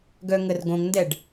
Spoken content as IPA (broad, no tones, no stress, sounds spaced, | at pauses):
ɡ œ ŋ ə r ɡ õ ŋ n d ɛ ɖ